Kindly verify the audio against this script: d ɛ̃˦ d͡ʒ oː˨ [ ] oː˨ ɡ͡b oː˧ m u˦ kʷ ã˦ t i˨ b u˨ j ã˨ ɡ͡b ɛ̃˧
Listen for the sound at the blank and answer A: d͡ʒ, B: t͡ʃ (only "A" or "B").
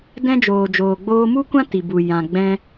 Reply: A